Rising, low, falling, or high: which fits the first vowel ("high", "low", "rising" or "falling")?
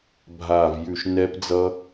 low